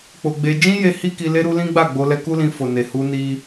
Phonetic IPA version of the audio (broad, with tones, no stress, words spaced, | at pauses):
k͡po˧ɡ͡be˧ d͡ʒĩ˦je˧ hi˦ki˧ le˦ɾu˦ lĩ˦ɡ͡ba˦˨ ɡ͡bo˧lɛ˧ku˦lĩ˧ fo˨ne˨hu˧ ni˦